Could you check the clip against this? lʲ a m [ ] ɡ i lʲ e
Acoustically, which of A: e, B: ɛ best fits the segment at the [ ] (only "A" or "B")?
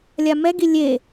B